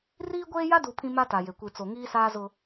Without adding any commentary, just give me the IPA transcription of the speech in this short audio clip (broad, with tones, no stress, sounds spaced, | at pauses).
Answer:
r iː˦ ɡʷ eː˦ j a˦ d u˨ pʰ ĩ˦ m a˦ t a˨ j e˨ kʷ i˨ t͡s o˨ ŋ iː˦ s aː˦ z ʊ˦